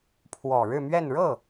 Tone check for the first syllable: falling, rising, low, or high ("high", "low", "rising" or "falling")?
low